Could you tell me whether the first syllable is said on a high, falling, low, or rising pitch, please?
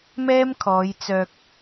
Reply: high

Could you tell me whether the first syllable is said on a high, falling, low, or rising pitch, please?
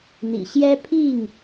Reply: low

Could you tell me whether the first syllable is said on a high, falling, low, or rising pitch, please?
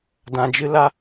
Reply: low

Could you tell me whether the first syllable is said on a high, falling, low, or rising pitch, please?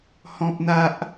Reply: high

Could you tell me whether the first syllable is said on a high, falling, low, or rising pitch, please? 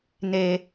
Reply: low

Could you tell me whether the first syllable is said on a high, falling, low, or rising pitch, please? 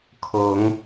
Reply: rising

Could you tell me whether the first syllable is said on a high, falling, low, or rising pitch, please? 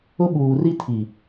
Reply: high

